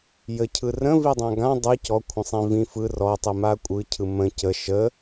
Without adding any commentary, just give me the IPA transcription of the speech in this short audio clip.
j ə cʰ ɯ r ə̃ v i dˤ ã ɡ ã dˤ ɯ c ɔ kʷʰ ə̃ sˤ ĩ v ĩ f ɯ r ɔ tˤ i m a kʷʼ ɯ cʰ ɯ m ə̃ c ə ʃ ə

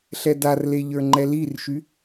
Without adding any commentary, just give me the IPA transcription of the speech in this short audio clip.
ɬ ɛ d a r l e ʎ ə˞ ŋ͡ǃ ɛ l i r ʃ y

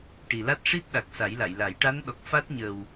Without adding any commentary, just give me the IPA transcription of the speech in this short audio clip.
ʈ i˨˩ l a˦˥ t̚ ʂ i˦˥ t̚ ɗ a˨˩ k̚ s a˨˩˦ j l a˨˩˨ j l a˨˩˦ j ʈ a˧˥ n ɗ ɔ˨˩ k̚ f a˦˥ t̚ ɲ ə˨˩ w

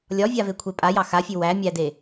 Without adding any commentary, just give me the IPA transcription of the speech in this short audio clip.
lʲ ɒ vʲ a v e kʷʰ e pʼ a j ɑ x a fʲ ʉ w æ mʲ æ d e

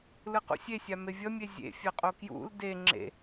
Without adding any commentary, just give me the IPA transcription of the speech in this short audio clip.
l ɯ q ṵ sʲ e sʲ a m e vʲ ʌ mʲ e zʲ ḛ fʲ a qʼ o k j ṵ l d e ŋ͡ǁ ḛ

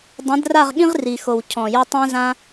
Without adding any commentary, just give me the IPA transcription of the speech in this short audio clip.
dˤ ɛ̃˨˦ d r a˦˨ ʁ ɠ ĩ˦ ʁ r i˨ x o˨ w cʰ ɔ̃˨ j o˧ tˤ ɛ̃˦ z ã˦

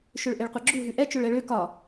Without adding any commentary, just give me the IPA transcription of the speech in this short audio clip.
ʃ ø ɭ ʔ e ɭ qʷ ɛ ɡ͡ǁ u ɦ ʉ ʔ ɛ t͡ʃ ø ɭ ɛ ɭ ø k ɒ

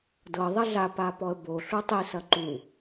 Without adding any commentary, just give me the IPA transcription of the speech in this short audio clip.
d ɤ ðˤ ɐ ɮ a p a p ɔ ə̯ b o ɬ u tˤ i s ɐ ǃ u

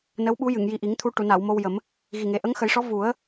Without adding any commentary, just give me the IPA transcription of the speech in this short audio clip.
n ə˧˥ w ɓ u˧˥ j ɨ˨˩˨ ŋ j i˨˩ ʔ i˨˩˦ ŋ t̪ʰ u˧ ʈ u˨˩˨ n a˨˩˨ w m o˧ w j ə˨˩˦ m | ɣ i˨˩ ŋ e˨˩ ʔ ə˧˥ ŋ x ə˨˩˦ j ʂ ɔ˧˥ v u˨˩˦ ə̯

